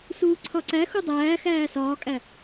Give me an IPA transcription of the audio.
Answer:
s uː ǀʰ ɒ ǀ æ x u dˤ æː x æː s ɒː kʼ æ

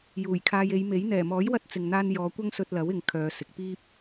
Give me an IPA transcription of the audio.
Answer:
j uː˨˩ j kʰ aː˧ j e˨˧ j m e˨˥ j n̪ ɛː˨˩ m ɔː˨˥ j w ɐ˧ t̚ t͡s ɪ˨ ŋ n̪ aː˧ n j ɔː˨˧ kʷ ɐ˥ ŋ s ɵ˧ t̚ l ɐ˨˥ w ɪ˨ ŋ kʰ œː˨ s ɪ˨ k̚ p iː˥ p̚

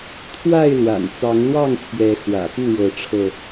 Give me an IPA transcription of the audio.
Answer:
t̪ʰ w a˥˨ ɪ̯ l w a̰˨˩ n t͡s ɑ˨˦ ŋ l w ɑ˥˨ ŋ t̪ʰ j ɛ˨˦ x w ä̰˨˩ p u˥˨ ɻ ɤ˨˦ ʈ͡ʂʰ ɤ˧

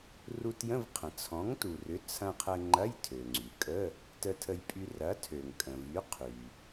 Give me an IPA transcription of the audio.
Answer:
r u˧ t j ə̃˧˥˧ v qʰ ə̃˩ t͡sʰ ɔ̃˨˥ ŋ t u˩ r ʏ˨˥ t͡sʰ ɐ̃˧ qʰ ə˧ ŋ͡ǃ ɐ˧˥˧ j tʰ ø˩ ŋ͡ǀ y˩ kʼ ə˧˥˧ | t ə˧ tʰ ə˧ j pʼ y˧ r ɐ˨˥ tʰ ø˩ ŋ kʼ ə̃˩ v y˨˥ qʰ y˩

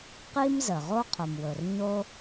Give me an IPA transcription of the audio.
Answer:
q i˥ m z ə˩ ʁ o˥ qʰ ʊ˩ m w ɵ˩ r ɲ o˥

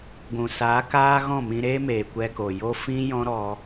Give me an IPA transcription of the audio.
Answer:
ɡʷ ũ˨ s aː˨˦ k aː˦ ɣ ɔ̃˦˨ m ĩ˧ ɾ eː˦ m eː˨ kʷ ɛ˧ k o˨ j o˦ f ĩ˦ j ɔ̃˦ ɾ ɔ˦

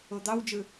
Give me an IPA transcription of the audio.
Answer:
o d̪ ɑ w d͡ʒ ɯ

